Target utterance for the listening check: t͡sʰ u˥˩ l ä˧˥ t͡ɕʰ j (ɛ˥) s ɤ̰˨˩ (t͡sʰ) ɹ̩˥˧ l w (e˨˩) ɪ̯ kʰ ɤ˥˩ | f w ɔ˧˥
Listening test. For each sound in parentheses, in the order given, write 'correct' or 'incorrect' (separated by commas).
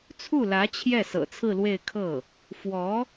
incorrect, correct, incorrect